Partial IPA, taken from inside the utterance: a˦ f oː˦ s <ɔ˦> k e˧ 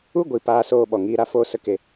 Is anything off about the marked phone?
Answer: yes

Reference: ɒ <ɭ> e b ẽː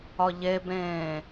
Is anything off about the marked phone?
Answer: yes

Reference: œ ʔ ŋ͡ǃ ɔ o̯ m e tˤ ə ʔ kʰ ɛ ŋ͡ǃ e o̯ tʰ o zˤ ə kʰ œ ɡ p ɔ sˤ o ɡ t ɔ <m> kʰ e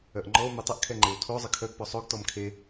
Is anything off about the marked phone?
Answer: no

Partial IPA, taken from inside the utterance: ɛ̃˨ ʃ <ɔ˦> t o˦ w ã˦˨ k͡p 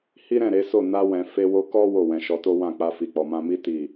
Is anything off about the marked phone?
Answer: yes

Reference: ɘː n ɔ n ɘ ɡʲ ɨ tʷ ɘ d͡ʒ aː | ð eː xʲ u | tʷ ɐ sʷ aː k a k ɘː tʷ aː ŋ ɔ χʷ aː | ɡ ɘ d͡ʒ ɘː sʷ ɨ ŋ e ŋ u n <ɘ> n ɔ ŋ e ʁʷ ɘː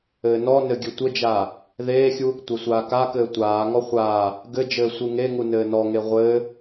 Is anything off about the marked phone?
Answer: yes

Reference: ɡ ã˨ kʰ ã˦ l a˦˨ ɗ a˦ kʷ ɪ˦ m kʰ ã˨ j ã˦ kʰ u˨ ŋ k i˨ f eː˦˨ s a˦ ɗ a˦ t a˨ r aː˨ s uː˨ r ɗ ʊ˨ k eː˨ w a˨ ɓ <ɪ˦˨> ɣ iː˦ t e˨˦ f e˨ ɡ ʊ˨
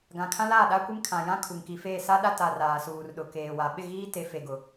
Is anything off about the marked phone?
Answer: no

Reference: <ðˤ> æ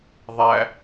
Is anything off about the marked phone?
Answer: no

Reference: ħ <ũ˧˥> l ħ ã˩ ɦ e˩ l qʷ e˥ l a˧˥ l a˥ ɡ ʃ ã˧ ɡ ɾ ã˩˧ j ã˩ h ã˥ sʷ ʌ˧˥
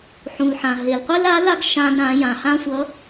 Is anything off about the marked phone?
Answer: yes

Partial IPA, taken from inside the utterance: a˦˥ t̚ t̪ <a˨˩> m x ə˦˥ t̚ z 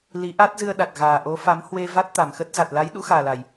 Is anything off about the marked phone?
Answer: no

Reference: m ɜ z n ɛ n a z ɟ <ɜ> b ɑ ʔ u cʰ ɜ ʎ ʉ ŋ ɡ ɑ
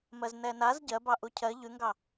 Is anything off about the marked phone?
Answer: no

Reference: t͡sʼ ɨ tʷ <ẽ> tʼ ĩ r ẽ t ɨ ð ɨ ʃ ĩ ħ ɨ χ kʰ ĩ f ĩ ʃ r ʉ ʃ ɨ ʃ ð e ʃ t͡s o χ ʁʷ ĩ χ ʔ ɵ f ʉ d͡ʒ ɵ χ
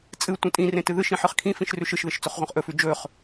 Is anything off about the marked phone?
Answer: yes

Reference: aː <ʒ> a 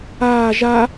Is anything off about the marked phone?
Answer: no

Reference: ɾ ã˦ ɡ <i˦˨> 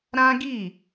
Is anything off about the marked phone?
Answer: no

